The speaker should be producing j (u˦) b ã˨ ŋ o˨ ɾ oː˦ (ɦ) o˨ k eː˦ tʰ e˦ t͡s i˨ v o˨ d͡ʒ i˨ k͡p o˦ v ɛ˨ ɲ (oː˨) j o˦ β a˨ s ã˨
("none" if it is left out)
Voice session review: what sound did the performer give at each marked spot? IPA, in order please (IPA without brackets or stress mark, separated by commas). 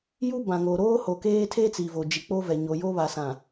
u˦, h, o˨